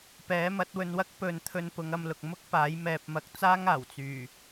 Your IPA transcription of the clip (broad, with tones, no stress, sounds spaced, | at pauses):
p ɛː˨˥ m ɐ˨˥ t̚ w ɵ˧ n w ɐ˥ k̚ p ɵ˨˧ n t̪ʰ ɵ˧ n p ʊ˨˧ ŋ ɐ˧ m l ʊ˨ k̚ m ʊ˥ k̚ p aː˨˥ j m ɛː˨ p̚ m ɐ˨˥ k̚ t͡s aː˥ ŋ aː˨˩ w t͡s yː˨˩